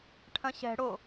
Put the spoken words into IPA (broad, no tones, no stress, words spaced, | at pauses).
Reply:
ʈʰɐ̃ɕɛ̤ ɽo